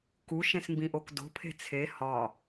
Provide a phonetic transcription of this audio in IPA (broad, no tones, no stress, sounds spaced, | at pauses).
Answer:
k u ʃ ẽ s m b ĩ ʔ o k d o̤ pʰ e̤ t͡sʰ e h ɒ